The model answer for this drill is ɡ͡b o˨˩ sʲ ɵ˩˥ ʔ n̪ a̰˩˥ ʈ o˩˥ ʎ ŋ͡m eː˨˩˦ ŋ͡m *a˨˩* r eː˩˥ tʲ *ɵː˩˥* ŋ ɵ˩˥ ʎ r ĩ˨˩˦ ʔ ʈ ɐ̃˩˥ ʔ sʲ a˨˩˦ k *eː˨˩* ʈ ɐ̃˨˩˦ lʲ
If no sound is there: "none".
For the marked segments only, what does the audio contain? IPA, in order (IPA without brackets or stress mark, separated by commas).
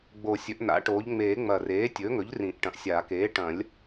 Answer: ɐ˨˩, ɵː˩˥, eː˩˥